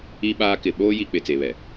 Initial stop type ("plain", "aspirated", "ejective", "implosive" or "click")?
implosive